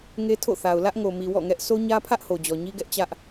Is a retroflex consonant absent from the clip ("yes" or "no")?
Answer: yes